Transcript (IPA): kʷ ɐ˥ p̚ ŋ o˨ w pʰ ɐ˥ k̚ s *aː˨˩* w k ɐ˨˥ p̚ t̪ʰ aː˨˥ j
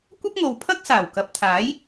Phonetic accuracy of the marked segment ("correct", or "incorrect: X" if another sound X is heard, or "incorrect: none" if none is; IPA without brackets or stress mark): correct